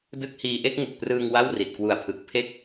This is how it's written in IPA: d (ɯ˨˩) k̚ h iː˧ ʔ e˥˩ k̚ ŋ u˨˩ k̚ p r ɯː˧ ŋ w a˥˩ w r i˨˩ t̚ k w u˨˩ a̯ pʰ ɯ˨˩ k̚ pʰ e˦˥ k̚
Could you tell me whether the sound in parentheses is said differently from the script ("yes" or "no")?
yes